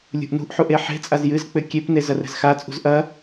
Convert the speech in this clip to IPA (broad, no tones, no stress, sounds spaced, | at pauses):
lʲ ṳ ʔ n ṳ ʔ ħ u ʔ e ħ e̤ t͡sʼ a z j ɨ z k͡p ɘ kʲ e p n e z ɐ r ɛ̤ z x a t͡sʼ ṳ z ʔ ɐ